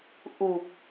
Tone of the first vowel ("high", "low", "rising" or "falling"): low